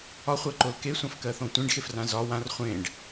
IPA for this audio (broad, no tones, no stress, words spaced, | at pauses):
ɒχʷɜǃol kesʷãfkɜθõ tʷẽɖxefrã zɒ wãr χʷẽɖ